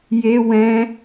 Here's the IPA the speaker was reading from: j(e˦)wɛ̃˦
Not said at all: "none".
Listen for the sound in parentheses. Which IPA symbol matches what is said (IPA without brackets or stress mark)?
e˦